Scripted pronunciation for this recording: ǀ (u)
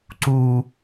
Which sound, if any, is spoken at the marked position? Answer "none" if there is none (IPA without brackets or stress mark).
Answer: u